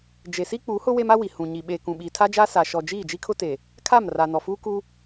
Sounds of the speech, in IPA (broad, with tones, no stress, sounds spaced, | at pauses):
d͡ʒ e˨ s i˦ k͡p u˨˦ h ʊ˦ w e˦ m a˦ w i˨ h ũ˨ ɲ i˨ ɓ eː˨ k ũ˨ ɓ iː˨ tʰ a˦ d͡ʒ aː˦ s a˨ ʃ ɔ˨ d͡ʒ iː˦˨ d͡ʒ i˦ kʰ ʊ˦ t e˨ | kʰ a˦˨ m r a˨ n ɔ˨ f uː˦ k u˦